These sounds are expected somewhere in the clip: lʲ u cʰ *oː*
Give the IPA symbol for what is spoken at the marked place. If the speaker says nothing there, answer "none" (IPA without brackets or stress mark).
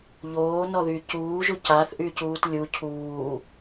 uː